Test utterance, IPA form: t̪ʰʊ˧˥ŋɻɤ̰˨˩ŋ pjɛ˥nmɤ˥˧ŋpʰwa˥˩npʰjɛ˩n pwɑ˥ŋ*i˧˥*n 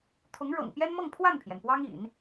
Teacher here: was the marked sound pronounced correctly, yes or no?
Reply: no